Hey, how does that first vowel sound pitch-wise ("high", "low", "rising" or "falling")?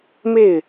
falling